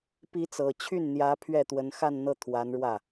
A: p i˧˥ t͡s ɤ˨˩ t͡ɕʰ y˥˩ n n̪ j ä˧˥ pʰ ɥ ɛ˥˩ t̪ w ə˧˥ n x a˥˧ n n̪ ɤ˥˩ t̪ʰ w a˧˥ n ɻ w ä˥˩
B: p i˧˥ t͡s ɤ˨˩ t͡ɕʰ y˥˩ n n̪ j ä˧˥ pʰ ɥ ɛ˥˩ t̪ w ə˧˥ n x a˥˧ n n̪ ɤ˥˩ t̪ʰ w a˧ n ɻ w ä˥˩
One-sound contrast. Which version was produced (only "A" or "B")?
A